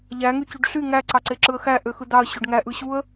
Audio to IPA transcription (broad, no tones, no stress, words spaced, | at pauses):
ʎæŋy cyɖɬy ŋæ ǀɑǀeǁɯə̯xæ ʔøxɯd̪ɑə̯ ɕøɖŋæ ʔɯɕuə̯